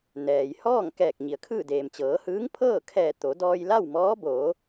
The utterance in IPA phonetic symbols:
n ɛː˩ j h ɔː˥˨ ŋ k ɛː˧˩ k̚ ɲ i˩ ə̯ kʰ ɯː˥˨ d eː˩ m t͡ɕ ɤː˩˧ h ɯː˧˥ ŋ pʰ ɤː˥˨ kʰ ɛː˧˩ t̪ o˩˧ d ɔː˧ j l a˥˨ w m ɔː˧˥ b oː˩˧

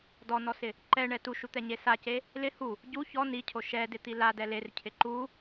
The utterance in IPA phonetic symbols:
d ɔ n ɔ s ɪ | ǃ ɛ ɳ ɛ t u ʃ u t̪ ɛ ɲ e s a c e | l ɪ h u | ɟ u ç ɔ n i cʰ o ʃ ɛ d ɪ t̪ i l a d ɛ l e r cʰ ɪ ǃ u

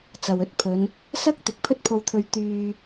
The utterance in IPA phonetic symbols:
t͡s ɐ˨ w ɵ˨˥ t̚ pʰ ɵ˨˧ n | s ɐ˥ k̚ t̪ ɪ˨˥ k̚ pʰ ɵ˥ t̚ pʰ o˧ w t̪ʰ ɵ˧ ɥ t̪ yː˧

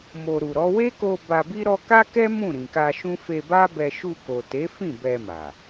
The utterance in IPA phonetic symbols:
m o˨ ɾ u˨ ɾ ɔ˨˦ w e˦ k o˧ b a˧ b i˦ ɾ ɔ˦ k a˦ k ɛ˦ m ũ˦˨ ɾ ĩ˨ k a˧ ʃ ũ˦ f e˧ b a˦ b ɛ˧ ʃ u˧ k o˨ t e˨˦ f ĩ˦˨ b ɛ˧ m a˨

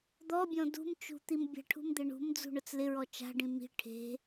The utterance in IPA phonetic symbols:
d̪ ɔ bʲ ɔ̃ d ṳ m t͡ʃ ṳ t̪ i m bʲ a̤ ʈʰ ṳ m d̪ ɪ ɳ ṳ m d͡z ṳ ɳ ʊ t͡s l ɪ ɹ ɔ t͡ʃ a̤ ɖ ĩ m i̤ ʈʰ e̤

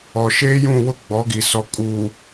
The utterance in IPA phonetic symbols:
ɔ˨ ʃ eː˦ j ũ˦˨ w ʊ˦ ɡ͡b ɔ˨˦ ɡ i˨ s ɔ˨ kʼ uː˨

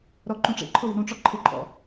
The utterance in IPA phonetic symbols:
ɾ ɔ ǃ ũ ʈ͡ʂ ḛ ǃʰ ʊ w i̤ ɾ ũ ʈ͡ʂ ɔ ǃʰ ɪ ǃʼ ɔ̰

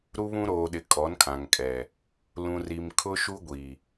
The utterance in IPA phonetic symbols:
ɾ u˦ β ũ˦ ɾ oː˨ ɗ ɪ˨ kʼ ɔ˨˦ n kʰ ã˨ ŋ kʼ ɛ˨ | l ũ˨ r i˨ m kʰ ʊ˦ ʃ u˦ ɡʷ i˨

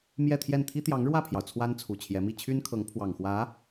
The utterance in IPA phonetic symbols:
m j ɛ˥˧ t̪ʰ j ɛ˥˩ n t̪ʰ i˥ t̪ j ɑ˧˥ ŋ ɻ w ä˥˩ pʰ j ɑ˩ ʊ̯ t͡sʰ w a˥ n t͡sʰ u˨˩ t͡ɕʰ j ɛ˧˥ m i˥˩ t͡ɕʰ y˥ n kʰ ɤ˧˥ ŋ pʰ w ɑ˨˩ ŋ x w ä˧˥

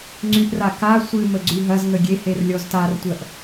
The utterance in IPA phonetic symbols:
ŋ͡ǀ y ʔ r a k a sʷ ɨ m ə ɡ͡ǀ y ɦ ɐ z ŋ ə ɡʲ e h e r lʲ ɔ z t a r tʷ ɜ ʔ

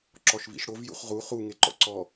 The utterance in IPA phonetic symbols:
ǁ ɔ ʃ v ḭ ʃ ɽ o v j ṵ χ ʁ u χ u ŋ e ǃ ɔ̰ ǀ ɔ

